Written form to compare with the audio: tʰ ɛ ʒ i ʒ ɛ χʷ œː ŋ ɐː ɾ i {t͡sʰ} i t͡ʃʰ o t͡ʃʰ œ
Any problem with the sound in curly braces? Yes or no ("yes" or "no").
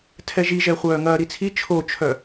no